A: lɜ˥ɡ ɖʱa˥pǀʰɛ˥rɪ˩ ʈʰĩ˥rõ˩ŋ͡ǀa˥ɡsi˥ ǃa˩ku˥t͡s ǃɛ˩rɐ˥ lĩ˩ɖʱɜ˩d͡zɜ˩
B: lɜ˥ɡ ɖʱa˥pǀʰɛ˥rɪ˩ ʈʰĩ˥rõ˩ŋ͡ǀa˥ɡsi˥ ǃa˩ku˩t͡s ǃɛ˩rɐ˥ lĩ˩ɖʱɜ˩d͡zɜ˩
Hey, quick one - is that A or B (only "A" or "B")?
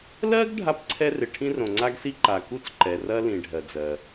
A